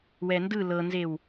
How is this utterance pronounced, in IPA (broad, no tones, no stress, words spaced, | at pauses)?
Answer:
wɛndɯ lɤnzew